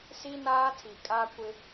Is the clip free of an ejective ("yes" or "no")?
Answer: no